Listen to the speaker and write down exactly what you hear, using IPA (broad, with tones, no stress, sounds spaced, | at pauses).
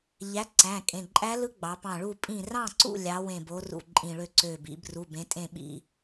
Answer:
ʎ æ˨˥ ǀ æ̃˩˧˩ kʼ ẽ˩˧˩ ǃʼ æ˦˥ l ɯ˦˥ ɡ͡b ɑ˩˧ p ɑ̃˧˩ ɭ u˥˨ pʼ ĩ˧˩ r ɑ̃˥˨ ǀ ṵ˥˨ lʲ ɑ˨˥ w ẽ˧˩ b o˨˥ r ṵ˧˩ ǃʼ ĩ˧˩ ɭ ø˥˨ ǀ ø˧˩ b ḭ˩˧ b r u˩˧˩ b ẽ˨˥ tʼ ẽ˥˨ ɓ ḭ˥˨